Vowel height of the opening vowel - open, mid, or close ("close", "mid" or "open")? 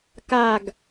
open